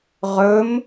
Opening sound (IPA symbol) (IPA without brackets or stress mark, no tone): ʁ